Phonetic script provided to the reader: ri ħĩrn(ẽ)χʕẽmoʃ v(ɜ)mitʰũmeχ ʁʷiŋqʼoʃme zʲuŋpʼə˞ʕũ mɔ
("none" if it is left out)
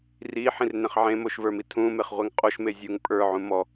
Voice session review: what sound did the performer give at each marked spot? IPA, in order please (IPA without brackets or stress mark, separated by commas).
ẽ, ə˞